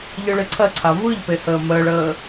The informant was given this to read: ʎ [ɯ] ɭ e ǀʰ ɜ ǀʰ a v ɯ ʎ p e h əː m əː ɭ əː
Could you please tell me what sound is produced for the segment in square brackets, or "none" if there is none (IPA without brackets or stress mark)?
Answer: ɯ